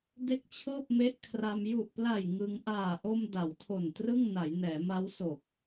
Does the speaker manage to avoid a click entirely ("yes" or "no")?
yes